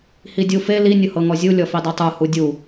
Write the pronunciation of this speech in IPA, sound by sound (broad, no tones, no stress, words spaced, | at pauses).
hidʲufe li nʲʊhɤŋɔzʲu lʲɔfidˤitˤu hudʲu